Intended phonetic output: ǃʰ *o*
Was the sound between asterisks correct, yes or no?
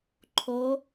yes